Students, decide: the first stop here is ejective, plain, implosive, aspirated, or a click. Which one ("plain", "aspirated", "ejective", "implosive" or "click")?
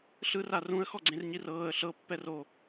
click